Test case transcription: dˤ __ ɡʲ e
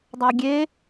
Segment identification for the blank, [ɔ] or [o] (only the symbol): o